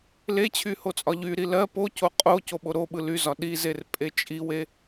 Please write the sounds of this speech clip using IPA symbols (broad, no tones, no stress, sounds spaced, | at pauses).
l e t͡ɕʰ y h o t͡sʼ ɒ ʎ y ɾ i l ɜ p o c o qʼ o c o ɓ o ɾ o ɓ ɯ l y z ɒ ɗ i z e r pʼ e t͡ʃʼ i w e